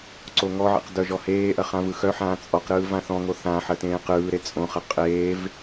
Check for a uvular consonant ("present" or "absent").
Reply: present